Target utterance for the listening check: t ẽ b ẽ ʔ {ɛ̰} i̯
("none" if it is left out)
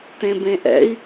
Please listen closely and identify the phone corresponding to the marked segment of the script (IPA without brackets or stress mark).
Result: ɛ̰